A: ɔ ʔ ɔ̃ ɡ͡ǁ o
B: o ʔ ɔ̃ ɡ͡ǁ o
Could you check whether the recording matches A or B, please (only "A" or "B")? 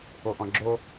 B